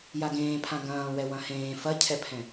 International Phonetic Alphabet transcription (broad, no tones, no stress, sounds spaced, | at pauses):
j a ɡ ẽː pʰ ã ɡ ɐ̃ː w ɛ w ɐ̃ h ẽː f ɐ cʰ ɛ pʰ ɛ̃